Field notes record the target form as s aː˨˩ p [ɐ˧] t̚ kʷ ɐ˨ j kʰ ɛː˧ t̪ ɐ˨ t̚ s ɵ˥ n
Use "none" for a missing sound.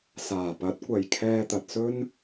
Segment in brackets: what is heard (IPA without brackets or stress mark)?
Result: ɐ˨˥